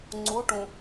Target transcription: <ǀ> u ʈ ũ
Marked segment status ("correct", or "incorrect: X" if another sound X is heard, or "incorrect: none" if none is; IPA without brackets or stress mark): incorrect: ŋ͡ǀ